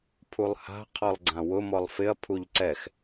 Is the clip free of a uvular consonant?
no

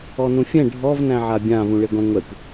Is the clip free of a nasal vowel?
no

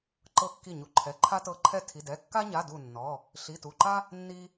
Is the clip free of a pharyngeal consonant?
yes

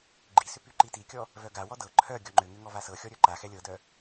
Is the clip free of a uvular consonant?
yes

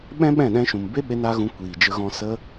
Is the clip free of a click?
yes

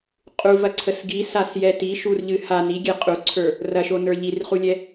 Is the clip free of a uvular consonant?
no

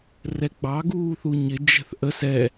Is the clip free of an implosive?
yes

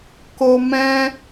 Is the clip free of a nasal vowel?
no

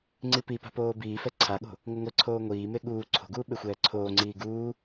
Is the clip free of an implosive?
no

